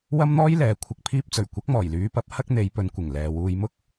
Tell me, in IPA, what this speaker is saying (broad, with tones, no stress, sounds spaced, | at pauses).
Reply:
w ɐ˥ m n̪ ɔː˥ j l ɛː˨ kʷʰ ɪ˨ k̚ pʰ iː˧ p̚ t͡s ɵ˨˩ ɥ kʷ ɐ˨˥ k̚ m ɔː˨˩ j l yː˨˧ p ɐ˨˥ p̚ h ɐ˥ k̚ n̪ e˨˧ j p ɵ˨˧ n kʷ ɪ˨˩ ŋ l ɛː˨ w uː˧ j m ʊ˥ k̚